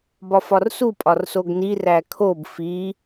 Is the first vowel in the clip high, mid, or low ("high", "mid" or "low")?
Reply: low